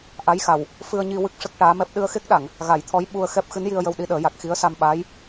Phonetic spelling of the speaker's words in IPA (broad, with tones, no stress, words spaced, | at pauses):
ʔa˧˥jxa˨˩w | fɨ˧ə̯ɲi˧ wɨ˦˥k̚ʂə˦˥k̚ ʈaː˧˥mɛ˦˥p̚ ɗɨ˧ə̯xe˦˥k̚ɗa˨˩˨ŋ | ɣa˨˩˦jt̪ʰɔ˧˥j ɓu˧ə̯xɛ˦˥p̚ xɨ˧˥nji˧ə̯jə˧w ɗi˧ɗəː˨˩˦ja˨˩k̚ xi˧˥ə̯sa˧mɓaː˧˥j